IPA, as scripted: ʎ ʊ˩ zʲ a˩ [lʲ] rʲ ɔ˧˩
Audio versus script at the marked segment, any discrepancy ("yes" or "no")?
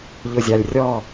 no